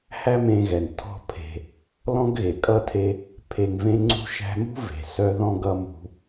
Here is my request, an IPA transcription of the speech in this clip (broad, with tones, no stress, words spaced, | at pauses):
hæ˥mẽ˧ɣɛ˩n tʰɔ̤˧pʰe̤˩ | lɔ̃˥ɡɣe˩ kʼʌ˥tʰe˧ | pʰe˧ŋvẽ˥ŋ͡ǀṳ˥ʃæ̤˥ mṳ˥ve̤˩sœ˧ðɔ̃˧ ɡʌ˥mṳ˧